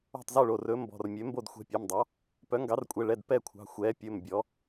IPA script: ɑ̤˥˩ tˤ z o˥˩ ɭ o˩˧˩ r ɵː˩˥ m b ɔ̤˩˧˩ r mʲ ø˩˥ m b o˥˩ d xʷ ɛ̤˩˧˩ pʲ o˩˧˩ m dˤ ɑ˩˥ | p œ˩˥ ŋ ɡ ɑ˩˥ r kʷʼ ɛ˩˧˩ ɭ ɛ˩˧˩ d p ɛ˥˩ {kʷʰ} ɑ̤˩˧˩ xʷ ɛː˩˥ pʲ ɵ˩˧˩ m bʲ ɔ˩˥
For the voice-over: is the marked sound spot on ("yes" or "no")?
yes